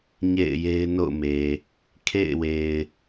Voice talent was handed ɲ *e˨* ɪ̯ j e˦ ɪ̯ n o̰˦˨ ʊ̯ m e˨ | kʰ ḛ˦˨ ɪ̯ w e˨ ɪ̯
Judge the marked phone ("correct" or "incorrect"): incorrect